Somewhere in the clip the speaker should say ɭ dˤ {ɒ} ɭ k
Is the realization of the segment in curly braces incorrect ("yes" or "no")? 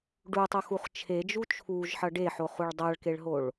yes